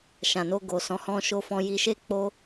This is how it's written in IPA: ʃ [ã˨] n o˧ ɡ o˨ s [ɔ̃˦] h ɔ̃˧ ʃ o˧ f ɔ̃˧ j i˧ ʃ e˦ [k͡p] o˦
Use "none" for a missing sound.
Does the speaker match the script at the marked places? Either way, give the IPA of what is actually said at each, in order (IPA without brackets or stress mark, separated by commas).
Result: ã˨, ɔ̃˨˦, k͡p